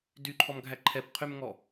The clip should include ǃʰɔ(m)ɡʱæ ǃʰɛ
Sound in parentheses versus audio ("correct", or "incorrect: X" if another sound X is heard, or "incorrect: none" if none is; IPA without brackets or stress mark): correct